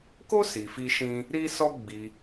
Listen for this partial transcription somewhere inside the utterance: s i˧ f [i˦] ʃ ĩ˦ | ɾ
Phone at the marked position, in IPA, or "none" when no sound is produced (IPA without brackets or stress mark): i˦